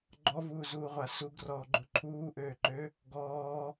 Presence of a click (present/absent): present